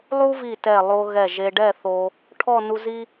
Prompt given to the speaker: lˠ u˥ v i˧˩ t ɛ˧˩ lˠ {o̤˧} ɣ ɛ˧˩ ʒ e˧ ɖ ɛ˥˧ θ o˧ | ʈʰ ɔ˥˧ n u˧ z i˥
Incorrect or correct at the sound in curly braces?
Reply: incorrect: o˧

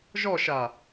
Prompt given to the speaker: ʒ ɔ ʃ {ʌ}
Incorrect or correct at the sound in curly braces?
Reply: incorrect: a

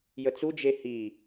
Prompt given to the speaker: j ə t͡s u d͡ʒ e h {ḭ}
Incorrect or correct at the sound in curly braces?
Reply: incorrect: i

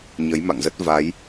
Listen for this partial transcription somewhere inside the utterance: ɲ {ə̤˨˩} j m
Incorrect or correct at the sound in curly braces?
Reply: incorrect: ə˨˦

